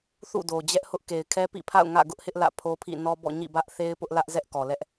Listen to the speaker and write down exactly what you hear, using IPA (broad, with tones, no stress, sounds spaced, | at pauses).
θ ṵ˦˨ d o˨ d͡ʑ ɛ˦ ʔ h ʊ˦ ʔ k e˨ ɪ̯ kʰ ɛ˦ p ḭ˦˨ pʰ a̰˦˨ ʊ̯ ŋ ä̰˦˨ ɡ ʊ˦ ʔ h ɪ˦ ʔ l ä̰˦˨ pʰ o˦ pʰ ḭ˦˨ n ɔ˦ b ɔ̰˦˨ ɲ ḭ˦˨ b ä˦ ʔ θ e˦ ɪ̯ p ʊ˦ ʔ l ä˦ ʔ z ɛ˦ ʔ k ɔ˨ l ɛ˦ ʔ